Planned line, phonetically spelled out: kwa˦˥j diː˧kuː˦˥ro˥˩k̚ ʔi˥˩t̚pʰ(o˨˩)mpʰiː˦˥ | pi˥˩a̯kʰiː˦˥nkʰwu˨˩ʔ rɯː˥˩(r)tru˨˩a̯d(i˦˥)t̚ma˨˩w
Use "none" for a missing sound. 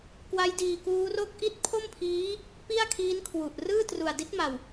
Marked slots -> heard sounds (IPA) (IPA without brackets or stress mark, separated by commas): o˥˩, none, i˦˥